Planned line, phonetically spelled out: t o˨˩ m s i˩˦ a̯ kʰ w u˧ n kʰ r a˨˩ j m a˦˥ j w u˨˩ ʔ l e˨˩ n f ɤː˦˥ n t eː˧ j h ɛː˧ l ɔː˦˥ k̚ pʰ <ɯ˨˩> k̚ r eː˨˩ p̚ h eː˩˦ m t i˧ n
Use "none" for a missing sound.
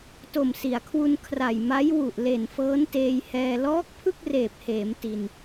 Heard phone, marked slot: ɯ˥˩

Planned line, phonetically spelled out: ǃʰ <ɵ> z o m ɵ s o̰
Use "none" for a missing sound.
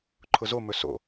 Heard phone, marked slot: ʊ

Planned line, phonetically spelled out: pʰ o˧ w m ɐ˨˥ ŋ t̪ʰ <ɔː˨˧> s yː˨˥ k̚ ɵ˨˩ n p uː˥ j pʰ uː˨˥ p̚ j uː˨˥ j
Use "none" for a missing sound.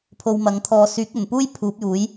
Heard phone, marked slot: ɔː˧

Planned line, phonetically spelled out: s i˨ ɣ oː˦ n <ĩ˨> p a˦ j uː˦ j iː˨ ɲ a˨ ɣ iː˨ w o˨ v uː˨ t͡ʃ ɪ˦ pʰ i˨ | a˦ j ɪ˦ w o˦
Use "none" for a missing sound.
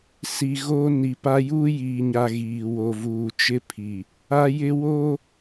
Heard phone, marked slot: i˨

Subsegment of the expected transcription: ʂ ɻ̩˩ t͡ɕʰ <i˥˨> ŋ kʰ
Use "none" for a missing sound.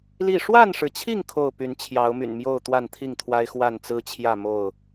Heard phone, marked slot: i˥˨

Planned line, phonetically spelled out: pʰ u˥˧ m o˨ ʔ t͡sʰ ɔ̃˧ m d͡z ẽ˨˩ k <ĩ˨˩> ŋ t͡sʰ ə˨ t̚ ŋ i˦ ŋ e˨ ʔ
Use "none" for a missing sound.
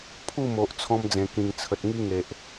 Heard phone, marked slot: ĩ˨˩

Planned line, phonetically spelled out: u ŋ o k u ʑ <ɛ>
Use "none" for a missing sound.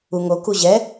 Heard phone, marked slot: ɛ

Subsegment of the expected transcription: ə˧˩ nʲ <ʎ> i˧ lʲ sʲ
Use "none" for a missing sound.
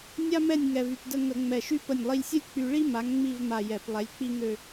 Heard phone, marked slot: lˠ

